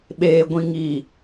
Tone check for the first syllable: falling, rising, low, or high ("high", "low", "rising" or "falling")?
low